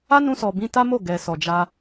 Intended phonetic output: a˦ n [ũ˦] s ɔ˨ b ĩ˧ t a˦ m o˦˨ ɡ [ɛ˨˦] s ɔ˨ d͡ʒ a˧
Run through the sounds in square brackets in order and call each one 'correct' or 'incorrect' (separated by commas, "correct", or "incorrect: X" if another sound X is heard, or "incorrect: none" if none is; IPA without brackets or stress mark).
incorrect: ũ˧, incorrect: ɛ˨